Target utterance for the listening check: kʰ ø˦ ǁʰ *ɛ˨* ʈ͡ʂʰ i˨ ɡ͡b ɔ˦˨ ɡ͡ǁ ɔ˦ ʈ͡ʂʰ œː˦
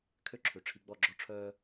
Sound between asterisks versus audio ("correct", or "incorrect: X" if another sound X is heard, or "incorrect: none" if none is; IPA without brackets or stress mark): incorrect: ø˨